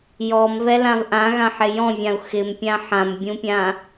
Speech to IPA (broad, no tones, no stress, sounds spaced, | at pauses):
j ɔ m v ɛ l ã v ʔ ã ɣ ã ħ ɪ j ɔ̃ vʲ ã u̯ x ɪ m pʲ ã ħ ã m bʲ ũ pʲ ã